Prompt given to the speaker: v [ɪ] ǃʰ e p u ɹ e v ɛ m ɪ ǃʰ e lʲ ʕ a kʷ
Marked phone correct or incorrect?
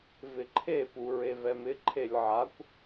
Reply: correct